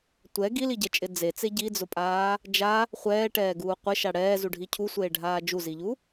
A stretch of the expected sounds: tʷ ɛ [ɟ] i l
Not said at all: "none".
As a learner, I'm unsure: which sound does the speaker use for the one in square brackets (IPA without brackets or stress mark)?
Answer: ɡ